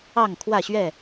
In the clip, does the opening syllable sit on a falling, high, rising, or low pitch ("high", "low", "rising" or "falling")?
falling